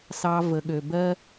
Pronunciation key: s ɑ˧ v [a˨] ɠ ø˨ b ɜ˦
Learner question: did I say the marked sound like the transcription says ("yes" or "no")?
no